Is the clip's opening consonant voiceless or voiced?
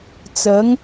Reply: voiceless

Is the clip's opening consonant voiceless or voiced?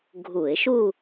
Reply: voiced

